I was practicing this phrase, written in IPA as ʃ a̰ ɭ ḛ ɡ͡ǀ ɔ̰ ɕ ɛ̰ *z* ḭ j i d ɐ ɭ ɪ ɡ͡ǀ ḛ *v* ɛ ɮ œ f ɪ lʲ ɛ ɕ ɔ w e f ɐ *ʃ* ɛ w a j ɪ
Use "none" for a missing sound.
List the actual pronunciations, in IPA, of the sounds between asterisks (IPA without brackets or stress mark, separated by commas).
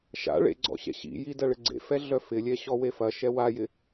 ɕ, f, ʃ